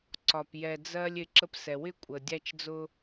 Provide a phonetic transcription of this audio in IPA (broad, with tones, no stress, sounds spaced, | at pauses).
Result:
ǀ ɒ˨ p j ɛ˨ d͡z ɜ˧ lʲ ɪ˨˦ ǁ ə˧ p s ɛ˨ w ɪ˦ kʷʼ ə˨ dʲ æ˦ t͡ʃ d͡z ʊ˦